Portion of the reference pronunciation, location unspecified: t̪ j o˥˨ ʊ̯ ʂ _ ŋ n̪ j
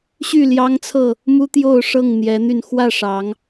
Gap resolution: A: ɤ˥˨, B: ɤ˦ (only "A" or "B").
A